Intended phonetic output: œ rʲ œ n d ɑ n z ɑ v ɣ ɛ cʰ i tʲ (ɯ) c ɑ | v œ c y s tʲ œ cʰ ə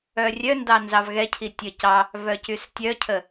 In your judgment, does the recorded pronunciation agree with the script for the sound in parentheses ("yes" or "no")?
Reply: no